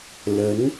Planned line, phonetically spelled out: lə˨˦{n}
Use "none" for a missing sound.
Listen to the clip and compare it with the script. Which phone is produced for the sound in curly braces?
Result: n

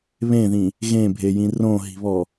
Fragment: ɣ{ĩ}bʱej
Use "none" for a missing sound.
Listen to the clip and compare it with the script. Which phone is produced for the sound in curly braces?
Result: ẽ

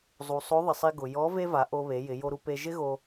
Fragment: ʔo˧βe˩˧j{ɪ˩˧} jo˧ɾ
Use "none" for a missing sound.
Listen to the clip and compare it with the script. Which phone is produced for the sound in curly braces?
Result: ɪ˩˧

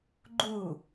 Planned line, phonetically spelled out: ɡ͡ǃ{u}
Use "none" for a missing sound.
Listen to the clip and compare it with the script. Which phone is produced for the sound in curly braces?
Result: u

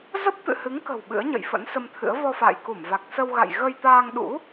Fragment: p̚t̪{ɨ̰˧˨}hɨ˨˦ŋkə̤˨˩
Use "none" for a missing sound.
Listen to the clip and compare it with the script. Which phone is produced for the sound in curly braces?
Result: ɨ̰˧˨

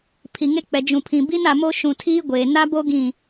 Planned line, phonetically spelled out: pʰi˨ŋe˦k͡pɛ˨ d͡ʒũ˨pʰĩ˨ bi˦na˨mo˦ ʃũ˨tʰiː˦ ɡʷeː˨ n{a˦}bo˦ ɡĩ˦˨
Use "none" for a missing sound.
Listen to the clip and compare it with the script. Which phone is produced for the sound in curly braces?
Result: a˦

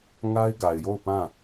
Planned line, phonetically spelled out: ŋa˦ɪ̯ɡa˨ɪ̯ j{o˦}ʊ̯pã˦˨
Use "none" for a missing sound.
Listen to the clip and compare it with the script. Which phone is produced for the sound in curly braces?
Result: o˦˨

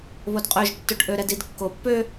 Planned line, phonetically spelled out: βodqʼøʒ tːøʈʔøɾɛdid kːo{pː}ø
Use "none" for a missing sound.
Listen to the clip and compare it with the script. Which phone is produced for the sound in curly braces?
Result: pː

